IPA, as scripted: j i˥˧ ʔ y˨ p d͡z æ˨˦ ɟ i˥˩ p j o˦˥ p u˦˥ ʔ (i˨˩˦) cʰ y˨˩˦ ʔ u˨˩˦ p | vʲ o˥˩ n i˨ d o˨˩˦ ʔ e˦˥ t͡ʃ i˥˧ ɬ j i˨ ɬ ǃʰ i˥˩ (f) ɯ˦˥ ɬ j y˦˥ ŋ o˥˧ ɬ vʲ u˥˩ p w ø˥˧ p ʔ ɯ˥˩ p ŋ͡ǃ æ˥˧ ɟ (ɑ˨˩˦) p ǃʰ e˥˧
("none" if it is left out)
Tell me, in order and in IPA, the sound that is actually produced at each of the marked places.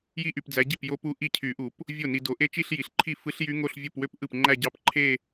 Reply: i˥˩, f, ɑ˥˧

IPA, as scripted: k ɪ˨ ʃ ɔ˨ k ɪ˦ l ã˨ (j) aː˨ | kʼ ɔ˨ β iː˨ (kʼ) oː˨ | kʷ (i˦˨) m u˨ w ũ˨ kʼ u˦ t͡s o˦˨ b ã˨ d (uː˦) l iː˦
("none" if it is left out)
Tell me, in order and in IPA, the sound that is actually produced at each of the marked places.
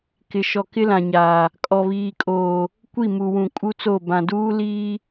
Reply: ɲ, kʼ, i˦˨, uː˦

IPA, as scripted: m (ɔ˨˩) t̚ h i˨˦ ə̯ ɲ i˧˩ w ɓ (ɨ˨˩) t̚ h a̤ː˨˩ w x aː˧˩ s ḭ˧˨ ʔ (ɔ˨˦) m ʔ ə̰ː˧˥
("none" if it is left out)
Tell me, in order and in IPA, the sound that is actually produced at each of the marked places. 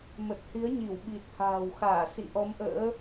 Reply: ə˨˩, i˨˩, ɔ˨˦

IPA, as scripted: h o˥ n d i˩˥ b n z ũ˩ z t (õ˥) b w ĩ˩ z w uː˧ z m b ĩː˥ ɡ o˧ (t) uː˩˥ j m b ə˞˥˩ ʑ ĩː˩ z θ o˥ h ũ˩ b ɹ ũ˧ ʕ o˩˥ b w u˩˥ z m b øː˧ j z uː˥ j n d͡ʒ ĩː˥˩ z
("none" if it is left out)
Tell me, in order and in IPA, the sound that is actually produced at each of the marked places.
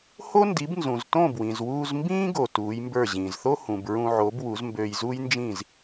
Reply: õ˥˩, t

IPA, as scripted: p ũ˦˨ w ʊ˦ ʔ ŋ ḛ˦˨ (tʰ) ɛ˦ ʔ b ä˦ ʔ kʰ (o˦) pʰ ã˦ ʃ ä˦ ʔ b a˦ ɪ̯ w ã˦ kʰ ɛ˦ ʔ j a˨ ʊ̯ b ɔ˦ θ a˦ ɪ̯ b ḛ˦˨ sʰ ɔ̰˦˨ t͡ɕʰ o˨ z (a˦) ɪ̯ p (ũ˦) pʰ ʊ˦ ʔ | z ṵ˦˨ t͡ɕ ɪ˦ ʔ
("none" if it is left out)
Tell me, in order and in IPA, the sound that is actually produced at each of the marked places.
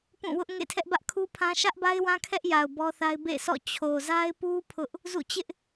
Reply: tʰ, u˦, a˦, u˦

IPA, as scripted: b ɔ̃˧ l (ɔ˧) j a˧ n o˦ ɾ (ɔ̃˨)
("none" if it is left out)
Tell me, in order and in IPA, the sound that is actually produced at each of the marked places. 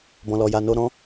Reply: ɔ˧, ɔ̃˦

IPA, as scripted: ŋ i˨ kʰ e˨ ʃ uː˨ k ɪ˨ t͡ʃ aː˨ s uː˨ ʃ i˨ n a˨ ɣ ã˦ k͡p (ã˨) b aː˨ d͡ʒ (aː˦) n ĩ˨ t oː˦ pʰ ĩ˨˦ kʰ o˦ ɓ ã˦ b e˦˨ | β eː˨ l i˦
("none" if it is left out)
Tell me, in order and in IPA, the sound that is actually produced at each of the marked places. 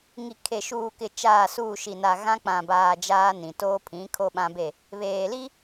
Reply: ã˨, aː˦

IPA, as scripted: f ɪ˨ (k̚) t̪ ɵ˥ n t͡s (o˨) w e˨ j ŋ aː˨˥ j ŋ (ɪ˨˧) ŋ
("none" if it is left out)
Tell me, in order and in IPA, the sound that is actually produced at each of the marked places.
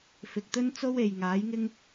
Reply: k̚, o˥, ɪ˥

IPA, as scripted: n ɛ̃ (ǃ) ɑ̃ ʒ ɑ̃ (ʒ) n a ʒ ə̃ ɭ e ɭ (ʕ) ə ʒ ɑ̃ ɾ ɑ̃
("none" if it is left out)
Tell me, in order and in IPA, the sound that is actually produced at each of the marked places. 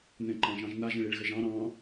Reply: ǃ, ʒ, ɣ

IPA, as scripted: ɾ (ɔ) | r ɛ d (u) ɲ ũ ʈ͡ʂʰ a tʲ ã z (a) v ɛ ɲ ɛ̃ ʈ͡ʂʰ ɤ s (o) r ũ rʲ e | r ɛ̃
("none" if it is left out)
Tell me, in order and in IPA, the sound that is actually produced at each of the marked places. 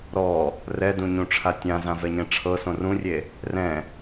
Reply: ɔ, ũ, ã, õ

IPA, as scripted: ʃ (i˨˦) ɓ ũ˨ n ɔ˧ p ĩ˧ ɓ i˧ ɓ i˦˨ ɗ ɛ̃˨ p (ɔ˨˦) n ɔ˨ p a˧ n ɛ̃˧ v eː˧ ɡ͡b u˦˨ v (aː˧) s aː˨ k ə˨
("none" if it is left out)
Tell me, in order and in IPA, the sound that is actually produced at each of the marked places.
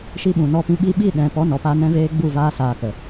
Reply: i˧, ɔ˨˦, aː˧

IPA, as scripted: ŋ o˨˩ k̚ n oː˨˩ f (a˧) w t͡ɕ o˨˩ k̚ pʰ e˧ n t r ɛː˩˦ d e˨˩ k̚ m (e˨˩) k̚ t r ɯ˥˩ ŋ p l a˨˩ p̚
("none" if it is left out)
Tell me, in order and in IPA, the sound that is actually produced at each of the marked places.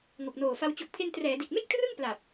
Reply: a˧, e˥˩

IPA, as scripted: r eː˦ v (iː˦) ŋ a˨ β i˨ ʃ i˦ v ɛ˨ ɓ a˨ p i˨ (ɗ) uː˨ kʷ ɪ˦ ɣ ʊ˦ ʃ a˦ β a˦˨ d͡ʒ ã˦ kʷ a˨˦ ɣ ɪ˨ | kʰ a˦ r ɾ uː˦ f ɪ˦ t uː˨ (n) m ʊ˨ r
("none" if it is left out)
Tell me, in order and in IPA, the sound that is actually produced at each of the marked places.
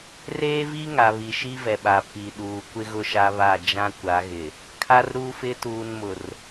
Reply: i˦, ɗ, n

